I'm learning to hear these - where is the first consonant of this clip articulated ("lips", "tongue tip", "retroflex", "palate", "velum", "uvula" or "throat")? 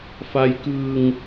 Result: lips